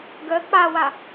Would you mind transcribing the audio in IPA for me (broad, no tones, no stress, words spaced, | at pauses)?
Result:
ɡə k͡pawa